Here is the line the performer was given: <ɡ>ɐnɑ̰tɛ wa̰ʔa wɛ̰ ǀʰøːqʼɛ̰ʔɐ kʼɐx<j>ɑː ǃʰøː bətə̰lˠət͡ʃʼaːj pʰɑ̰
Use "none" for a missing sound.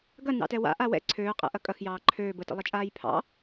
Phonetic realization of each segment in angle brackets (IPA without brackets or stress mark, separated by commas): ɡ, j